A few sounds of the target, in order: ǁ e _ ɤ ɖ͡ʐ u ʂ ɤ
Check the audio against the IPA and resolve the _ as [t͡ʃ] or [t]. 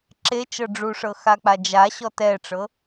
t͡ʃ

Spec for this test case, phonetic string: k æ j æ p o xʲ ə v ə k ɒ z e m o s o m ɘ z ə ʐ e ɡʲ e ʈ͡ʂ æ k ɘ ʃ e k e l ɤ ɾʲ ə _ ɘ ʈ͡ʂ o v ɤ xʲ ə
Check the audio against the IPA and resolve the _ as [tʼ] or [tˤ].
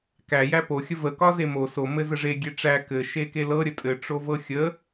tʼ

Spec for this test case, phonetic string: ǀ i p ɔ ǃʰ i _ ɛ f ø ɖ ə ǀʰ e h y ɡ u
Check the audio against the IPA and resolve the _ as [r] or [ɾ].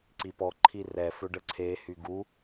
r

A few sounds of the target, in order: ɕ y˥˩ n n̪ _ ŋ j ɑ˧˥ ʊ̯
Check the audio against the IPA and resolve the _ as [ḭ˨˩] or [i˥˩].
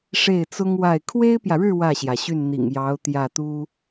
ḭ˨˩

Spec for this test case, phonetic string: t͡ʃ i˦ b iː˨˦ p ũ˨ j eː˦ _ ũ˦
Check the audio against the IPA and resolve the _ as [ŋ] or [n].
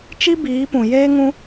ŋ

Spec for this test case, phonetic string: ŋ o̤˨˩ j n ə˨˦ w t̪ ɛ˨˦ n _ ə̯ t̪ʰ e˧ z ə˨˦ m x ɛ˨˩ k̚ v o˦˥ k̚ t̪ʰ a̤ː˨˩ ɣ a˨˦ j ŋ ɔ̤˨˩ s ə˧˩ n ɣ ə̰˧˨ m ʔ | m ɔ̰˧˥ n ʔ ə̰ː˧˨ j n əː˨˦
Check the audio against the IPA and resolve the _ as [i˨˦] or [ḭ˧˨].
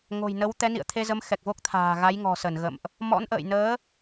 ḭ˧˨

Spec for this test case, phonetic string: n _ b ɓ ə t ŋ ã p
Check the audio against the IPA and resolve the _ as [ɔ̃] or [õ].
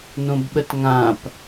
õ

